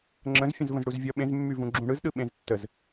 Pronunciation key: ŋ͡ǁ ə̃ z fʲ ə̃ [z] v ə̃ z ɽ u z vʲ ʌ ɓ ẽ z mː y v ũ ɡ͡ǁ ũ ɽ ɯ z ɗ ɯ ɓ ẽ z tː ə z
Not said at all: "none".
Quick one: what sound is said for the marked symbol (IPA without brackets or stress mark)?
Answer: z